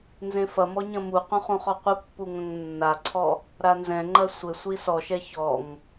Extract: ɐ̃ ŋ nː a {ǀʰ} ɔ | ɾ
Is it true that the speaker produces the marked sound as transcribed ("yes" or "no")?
yes